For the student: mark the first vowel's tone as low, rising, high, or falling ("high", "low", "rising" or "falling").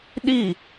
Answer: falling